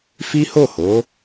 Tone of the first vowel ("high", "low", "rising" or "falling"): high